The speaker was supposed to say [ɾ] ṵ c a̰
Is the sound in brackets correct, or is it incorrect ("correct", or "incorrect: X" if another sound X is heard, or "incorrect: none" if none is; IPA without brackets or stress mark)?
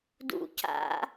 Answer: incorrect: d